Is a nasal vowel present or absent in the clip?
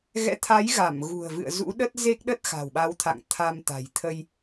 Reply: absent